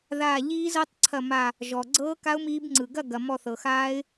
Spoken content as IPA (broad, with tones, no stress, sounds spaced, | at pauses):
ð aː˧˩ ʎ iː˦˥ z ɤ˦˥ tˤ ǀʰ ɐ˧˩ m a˧˩ | ʒ ɔ˩ ɡ͡ǀ ɤː˦˥ k a˦˥ ʊ̯ m iː˦˥ b ŋ͡ǀ ɯ˩ ɡ ɐ˥˨ ɡ ɐ˩ m ɔ˧˩ θ ɤ˩ x aː˦˥ ɪ̯